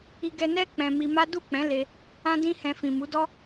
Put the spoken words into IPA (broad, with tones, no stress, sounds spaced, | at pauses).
i˦ ɡ ɛ˦ n ɛ˦ k͡p ɛ̃˧ m i˧ m a˦ d u˦˨ k͡p ɛ̃˨˦ l e˧ | ã˦ d ĩ˦ h ɛ̃˧ f ĩ˨ m u˨˦ d ɔ˦